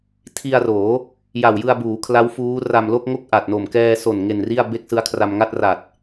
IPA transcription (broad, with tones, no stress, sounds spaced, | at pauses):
tʰ i˧ a̯ r oː˩˦ | j a˨˩ w j ɯ˧ a̯ b uː˩˦ kʰ l a˦˥ w f uː˦˥ r a˧ m l o˥˩ k̚ ŋ o˥˩ k̚ ʔ a˨˩ t̚ n o˨˩ m k ɛː˧ s o˨˩ n ŋ e˨˩ n r i˥˩ a̯ b e˥˩ k̚ s ɯ˦˥ a̯ kʰ r a˧ m ŋ a˥˩ t̚ r a˨˩ t̚